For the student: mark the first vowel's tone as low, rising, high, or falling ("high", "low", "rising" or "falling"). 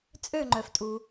falling